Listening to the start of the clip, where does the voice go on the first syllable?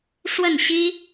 falling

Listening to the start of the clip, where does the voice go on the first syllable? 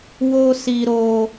high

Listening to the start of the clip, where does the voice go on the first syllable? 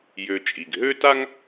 low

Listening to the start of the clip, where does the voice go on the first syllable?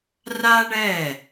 high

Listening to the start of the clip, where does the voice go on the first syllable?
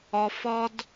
low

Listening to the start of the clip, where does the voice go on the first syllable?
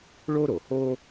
high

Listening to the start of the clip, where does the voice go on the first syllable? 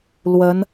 rising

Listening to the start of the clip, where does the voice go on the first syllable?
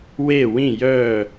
falling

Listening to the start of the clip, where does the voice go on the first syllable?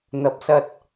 rising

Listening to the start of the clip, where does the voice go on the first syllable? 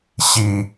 low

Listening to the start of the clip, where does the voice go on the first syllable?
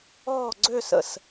falling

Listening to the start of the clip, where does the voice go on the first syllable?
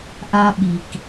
high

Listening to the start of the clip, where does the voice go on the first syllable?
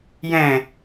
low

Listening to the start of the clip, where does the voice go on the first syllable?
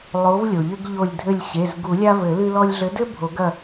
rising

